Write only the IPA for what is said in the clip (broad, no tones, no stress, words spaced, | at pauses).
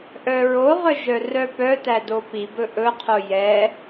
ʔœɹoʁœ ʒœrœpœtæ dopibɵ ʔɵqʰo jɛ